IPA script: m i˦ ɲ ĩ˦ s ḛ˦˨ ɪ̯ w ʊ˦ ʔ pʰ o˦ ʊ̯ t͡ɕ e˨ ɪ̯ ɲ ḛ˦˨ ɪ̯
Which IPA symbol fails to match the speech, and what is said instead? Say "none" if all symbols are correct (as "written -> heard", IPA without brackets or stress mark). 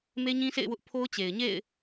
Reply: i˦ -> e˦